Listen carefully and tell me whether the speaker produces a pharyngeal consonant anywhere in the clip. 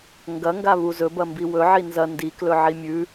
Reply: yes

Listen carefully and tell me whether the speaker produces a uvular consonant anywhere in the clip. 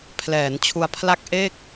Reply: no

